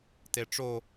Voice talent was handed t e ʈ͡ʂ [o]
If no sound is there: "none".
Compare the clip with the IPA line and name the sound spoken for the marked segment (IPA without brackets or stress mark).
o